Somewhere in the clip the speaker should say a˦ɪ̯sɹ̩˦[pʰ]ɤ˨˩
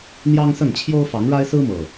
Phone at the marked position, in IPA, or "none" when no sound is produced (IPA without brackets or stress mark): m